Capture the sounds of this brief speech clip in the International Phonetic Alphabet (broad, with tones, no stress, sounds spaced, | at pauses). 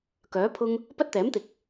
k œː˨˥ pʰ ʊ˥ ŋ | p ɐ˥ t̚ t̪ ɛː˨˥ m t̪ ɪ˨ k̚